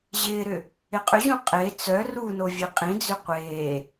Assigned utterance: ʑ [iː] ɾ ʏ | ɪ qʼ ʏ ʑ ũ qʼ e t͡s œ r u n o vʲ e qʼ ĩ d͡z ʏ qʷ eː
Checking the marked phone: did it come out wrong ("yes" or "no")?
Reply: yes